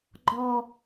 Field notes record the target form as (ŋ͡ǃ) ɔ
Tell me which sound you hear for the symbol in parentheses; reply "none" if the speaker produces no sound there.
ɡ͡ǃ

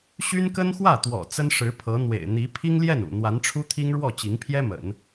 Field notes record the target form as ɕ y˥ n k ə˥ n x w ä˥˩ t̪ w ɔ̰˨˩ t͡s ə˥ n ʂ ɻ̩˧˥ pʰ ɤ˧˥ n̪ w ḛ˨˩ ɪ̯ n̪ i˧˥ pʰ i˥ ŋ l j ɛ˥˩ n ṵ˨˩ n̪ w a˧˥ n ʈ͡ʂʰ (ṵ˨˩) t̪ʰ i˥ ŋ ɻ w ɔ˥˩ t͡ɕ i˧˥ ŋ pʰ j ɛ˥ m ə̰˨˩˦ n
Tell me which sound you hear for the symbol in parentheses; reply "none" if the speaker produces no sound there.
u˥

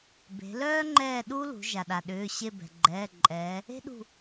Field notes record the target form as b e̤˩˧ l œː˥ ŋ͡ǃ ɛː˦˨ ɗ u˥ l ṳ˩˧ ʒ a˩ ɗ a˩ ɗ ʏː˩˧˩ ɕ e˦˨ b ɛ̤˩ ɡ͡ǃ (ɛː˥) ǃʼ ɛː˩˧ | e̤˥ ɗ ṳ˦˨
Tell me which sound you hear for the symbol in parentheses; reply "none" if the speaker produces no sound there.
ɛː˩˧˩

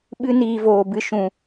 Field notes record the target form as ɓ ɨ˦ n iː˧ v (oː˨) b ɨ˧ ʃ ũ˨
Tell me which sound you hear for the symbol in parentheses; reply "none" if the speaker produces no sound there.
oː˨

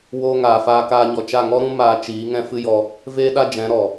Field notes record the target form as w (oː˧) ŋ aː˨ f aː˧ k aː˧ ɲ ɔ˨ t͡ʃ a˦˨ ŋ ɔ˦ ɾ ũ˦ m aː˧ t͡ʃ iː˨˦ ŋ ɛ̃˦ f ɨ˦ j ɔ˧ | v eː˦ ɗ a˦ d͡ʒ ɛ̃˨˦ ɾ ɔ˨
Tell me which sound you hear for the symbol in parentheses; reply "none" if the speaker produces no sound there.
oː˧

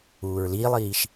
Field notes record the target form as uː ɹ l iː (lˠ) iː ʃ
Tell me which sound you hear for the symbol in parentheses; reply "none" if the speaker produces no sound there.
lˠ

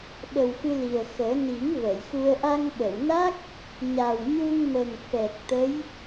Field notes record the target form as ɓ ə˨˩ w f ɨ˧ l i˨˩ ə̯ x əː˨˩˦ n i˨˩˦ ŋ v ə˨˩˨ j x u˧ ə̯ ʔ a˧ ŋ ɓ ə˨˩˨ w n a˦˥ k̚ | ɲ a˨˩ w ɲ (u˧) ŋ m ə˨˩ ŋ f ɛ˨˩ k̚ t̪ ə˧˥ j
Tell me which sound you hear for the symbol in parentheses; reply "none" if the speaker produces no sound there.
u˧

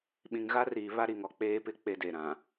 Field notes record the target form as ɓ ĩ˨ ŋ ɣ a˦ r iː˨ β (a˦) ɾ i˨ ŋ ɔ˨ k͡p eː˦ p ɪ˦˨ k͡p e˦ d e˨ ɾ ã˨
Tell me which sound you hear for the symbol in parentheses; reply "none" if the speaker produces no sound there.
a˦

